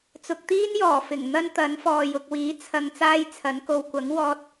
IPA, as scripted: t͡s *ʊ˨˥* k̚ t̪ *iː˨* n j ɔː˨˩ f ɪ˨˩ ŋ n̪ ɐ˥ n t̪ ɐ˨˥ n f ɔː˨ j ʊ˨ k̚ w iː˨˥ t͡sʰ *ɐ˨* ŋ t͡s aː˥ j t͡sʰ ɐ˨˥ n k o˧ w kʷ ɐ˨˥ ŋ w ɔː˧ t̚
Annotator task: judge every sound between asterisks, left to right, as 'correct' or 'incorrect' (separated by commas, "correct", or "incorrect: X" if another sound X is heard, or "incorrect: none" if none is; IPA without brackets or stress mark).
incorrect: ʊ˨, incorrect: iː˥, correct